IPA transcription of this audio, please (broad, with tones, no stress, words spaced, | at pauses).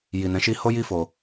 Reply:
ji˨nɛ̃˨˦ʃi˧ ho˦ji˦fo˧